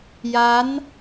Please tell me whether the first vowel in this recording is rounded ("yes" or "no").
no